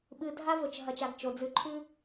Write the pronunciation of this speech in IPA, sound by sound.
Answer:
ɓɨ˨ dʱa˦vɵ˨t͡ʃɦɐ˨t͡ʃa˨ɡ t͡ʃo˨d͡zʉ˦ ǃʰʉ˦

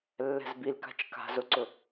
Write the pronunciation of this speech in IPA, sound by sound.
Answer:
lːɛ̤zbilka̤t͡ʃ ka̤zʊǀʊ

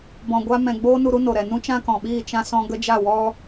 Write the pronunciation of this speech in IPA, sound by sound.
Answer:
bɔ̃˨ɡʷa˧ mɛ̃˨ ɡ͡boː˦nu˧ɾu˦ no˨ɾɛ˨ nũ˦t͡ʃã˦kɔ̃˨ɓiː˦˨ t͡ʃã˦ sɔ̃˧ɡə˦d͡ʒa˦˨wɔ˦

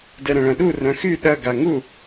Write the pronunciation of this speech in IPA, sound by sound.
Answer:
dɛɾɐ̃ɭɐ̃ɗu rœ̃xy ɗɐ ɡaŋu

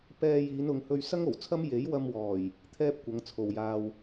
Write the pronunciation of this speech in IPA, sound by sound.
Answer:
pɛː˧jiː˨˧nʊ˨˧ŋhɵ˧ɥ sɐ˥ŋ o˨˩wt͡sʰɐ˥m je˨˥jwɐ˧mwɔː˨˩j | t̪ʰɛː˥p̚kʷɐ˨˧ŋt͡sʰo˨wjaː˧w

